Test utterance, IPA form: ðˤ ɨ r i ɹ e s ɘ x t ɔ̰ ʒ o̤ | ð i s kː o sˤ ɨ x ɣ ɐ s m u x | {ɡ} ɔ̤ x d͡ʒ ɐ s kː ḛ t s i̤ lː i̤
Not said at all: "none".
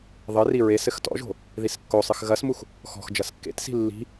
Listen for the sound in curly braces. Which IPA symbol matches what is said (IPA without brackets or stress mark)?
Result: x